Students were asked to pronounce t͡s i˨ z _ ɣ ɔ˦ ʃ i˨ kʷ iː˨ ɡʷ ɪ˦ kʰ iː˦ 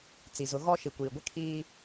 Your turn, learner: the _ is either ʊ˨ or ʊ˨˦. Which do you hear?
ʊ˨˦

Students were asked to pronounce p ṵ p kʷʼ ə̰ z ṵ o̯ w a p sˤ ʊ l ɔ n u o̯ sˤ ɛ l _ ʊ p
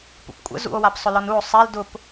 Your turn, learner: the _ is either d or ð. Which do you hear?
d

